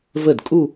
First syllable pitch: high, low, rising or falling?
falling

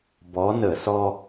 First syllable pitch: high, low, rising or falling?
rising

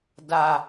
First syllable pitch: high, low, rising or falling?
high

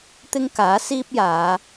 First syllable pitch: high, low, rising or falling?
high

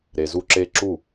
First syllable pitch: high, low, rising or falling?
low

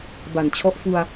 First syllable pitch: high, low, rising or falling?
low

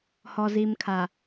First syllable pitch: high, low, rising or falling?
low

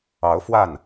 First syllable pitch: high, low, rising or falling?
rising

